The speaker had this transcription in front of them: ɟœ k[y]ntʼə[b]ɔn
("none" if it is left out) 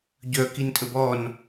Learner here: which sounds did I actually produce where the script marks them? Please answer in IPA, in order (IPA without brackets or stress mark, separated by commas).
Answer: i, b